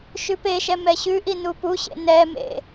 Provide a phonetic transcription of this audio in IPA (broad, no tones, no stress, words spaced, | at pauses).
ʃʉpeʃɛ mɛɕʉʔi nupuɕḛ nɛmḛ